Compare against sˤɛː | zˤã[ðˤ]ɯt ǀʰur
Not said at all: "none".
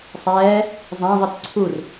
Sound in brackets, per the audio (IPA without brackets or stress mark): ðˤ